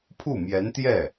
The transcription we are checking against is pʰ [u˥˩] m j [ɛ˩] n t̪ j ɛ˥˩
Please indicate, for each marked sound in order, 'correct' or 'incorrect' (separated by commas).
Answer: correct, incorrect